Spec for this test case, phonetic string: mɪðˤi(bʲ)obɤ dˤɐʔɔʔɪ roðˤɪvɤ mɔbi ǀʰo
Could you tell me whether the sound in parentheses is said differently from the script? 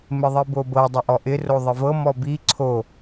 yes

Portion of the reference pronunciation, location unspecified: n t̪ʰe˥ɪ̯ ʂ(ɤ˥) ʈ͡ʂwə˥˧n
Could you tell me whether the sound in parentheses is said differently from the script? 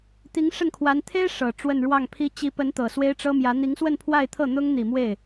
yes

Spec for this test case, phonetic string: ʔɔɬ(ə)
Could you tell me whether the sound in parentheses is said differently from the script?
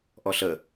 no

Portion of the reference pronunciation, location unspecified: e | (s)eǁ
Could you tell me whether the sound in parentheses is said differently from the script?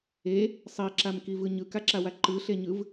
yes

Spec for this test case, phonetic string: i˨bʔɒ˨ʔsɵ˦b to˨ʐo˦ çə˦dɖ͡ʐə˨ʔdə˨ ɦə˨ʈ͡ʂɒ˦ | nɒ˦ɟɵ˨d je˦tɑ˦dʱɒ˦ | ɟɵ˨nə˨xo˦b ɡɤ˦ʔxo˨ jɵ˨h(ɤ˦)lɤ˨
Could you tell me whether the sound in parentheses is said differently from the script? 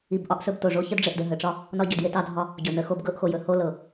yes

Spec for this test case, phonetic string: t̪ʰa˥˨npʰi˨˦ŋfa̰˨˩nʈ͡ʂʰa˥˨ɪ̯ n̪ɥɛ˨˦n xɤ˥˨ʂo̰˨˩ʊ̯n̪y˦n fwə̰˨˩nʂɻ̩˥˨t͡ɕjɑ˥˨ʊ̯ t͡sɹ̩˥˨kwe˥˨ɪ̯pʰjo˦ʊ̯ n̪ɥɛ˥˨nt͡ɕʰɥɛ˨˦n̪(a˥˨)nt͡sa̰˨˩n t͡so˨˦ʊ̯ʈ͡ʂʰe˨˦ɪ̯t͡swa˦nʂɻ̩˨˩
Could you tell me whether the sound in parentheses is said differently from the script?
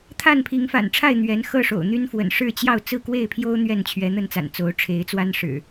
yes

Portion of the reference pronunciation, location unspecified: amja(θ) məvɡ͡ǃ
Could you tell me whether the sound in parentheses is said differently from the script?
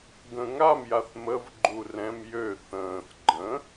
no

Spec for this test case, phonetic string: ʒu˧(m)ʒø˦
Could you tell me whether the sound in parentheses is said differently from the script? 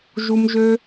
no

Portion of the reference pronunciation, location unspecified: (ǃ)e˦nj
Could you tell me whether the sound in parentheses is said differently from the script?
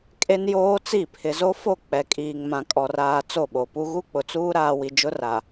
yes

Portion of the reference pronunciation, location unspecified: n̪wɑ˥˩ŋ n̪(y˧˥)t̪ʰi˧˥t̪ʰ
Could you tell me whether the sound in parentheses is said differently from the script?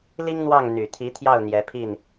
yes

